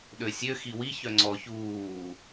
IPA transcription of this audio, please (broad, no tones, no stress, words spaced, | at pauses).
ɗøsʲø xiwi çœŋ͡ǀɔ çuː